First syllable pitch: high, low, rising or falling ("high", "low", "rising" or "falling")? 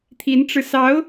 rising